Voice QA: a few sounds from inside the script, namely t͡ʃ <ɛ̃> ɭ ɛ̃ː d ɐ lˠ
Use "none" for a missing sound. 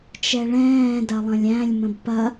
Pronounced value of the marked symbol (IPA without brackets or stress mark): ɛ